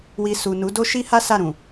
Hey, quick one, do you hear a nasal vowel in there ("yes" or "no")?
yes